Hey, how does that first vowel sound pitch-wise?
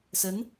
rising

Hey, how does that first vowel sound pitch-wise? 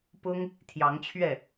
high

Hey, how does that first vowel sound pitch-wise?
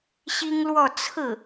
high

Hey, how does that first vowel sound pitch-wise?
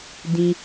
high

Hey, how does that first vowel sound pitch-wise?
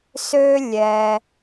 high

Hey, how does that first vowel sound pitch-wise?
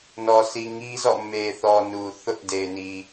low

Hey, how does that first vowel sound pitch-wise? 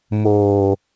low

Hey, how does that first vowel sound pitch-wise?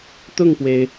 falling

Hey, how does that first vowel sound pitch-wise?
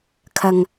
low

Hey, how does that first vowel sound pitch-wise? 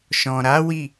low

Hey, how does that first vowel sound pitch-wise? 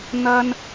high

